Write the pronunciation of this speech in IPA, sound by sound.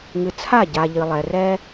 ŋ ɨ˨ t͡sʰ a˦˨ ɟ a˨ ʎ ɨ˨ lˠ ɛ˨ r ɛ˦

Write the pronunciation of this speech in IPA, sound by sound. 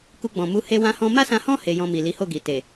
k u˧ ɡ͡b ɔ̃˨ m u˨˦ h e˦ w ã˦ h ɔ̃˦ m a˦ s ã˧ h ɔ̃˦ h e˧ j ɔ̃˧ m i˨ l i˨˦ h o˦˨ ɡ i˨ t e˨

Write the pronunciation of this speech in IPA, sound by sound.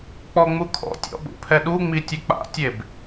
k͡p ɔ ŋ͡m u kʰ ɔ̰ tʲ ɔ̰ ɓ ṵ pʰ ɛ ɗ u ŋ͡m i tʲ ɘ k͡p a̰ tʲ e b

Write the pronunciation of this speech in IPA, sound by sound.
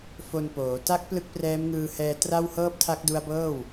f o˧ n p oː˩˦ t a˦˥ k̚ p l ɯ˦˥ k̚ p r ɛː˦˥ m ŋ ɯː˧ h ɛː˧ t r a˥˩ w h ɤː˥˩ p̚ tʰ a˦˥ k̚ d u˦˥ a̯ b ɤː˥˩ w

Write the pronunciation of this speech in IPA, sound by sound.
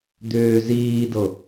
d̪ ʏː z iː d ɤ

